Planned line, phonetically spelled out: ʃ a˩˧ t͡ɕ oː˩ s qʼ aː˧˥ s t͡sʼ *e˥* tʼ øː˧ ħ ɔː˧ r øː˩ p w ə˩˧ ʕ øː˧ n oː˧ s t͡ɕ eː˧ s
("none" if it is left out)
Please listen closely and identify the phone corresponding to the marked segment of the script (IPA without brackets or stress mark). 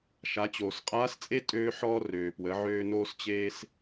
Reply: e˥